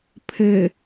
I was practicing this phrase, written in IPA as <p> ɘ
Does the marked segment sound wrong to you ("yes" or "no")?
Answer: yes